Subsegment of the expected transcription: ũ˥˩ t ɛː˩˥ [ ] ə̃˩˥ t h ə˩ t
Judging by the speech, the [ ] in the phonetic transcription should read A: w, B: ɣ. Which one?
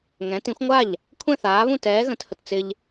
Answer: B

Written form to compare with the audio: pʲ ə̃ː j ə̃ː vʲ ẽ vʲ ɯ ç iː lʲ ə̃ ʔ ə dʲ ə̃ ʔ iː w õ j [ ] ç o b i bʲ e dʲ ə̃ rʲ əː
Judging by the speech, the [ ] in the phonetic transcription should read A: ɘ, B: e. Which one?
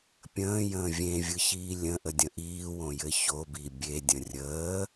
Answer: A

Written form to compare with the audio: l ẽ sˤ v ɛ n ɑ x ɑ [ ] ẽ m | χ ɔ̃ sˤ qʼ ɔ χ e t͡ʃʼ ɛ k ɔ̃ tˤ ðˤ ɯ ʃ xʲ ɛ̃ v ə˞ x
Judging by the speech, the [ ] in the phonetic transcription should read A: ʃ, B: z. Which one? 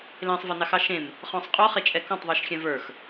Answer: A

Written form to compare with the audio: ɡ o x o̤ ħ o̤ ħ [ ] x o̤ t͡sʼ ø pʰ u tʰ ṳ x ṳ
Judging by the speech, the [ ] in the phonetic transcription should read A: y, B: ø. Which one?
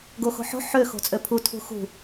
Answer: B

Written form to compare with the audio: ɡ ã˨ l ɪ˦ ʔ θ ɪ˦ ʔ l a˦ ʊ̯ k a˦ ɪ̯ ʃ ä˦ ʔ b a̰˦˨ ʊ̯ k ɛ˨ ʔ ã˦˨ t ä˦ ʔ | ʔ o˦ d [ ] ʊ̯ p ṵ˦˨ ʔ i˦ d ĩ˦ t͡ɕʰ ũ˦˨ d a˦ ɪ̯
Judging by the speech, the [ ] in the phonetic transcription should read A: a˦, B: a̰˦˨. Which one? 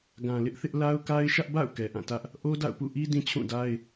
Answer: B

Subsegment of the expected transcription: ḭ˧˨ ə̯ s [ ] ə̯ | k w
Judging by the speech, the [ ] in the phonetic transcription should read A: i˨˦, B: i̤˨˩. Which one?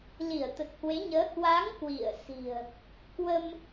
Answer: B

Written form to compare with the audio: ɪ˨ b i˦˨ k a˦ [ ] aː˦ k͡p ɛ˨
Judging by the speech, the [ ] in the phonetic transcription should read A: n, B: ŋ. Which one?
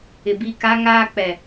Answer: B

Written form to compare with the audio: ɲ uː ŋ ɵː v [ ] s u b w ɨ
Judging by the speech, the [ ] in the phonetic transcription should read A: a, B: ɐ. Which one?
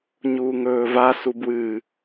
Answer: A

